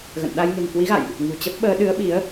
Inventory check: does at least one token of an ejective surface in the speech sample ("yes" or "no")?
no